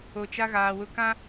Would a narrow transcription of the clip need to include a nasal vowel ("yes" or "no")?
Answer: yes